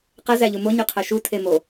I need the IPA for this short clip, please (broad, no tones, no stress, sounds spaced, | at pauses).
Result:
q æ z æ ʎ u m o ɲ y qʰ æ ʃ u tʰ e m o